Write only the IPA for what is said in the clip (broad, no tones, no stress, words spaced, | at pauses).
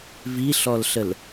viɬɔlɬəl